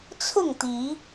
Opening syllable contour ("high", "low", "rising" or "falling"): falling